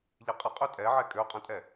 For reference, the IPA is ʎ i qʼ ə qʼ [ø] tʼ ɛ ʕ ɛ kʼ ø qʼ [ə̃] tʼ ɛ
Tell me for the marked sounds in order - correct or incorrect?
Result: correct, correct

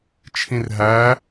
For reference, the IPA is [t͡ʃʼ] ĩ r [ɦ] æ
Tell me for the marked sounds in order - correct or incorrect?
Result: incorrect: t͡ʃʰ, correct

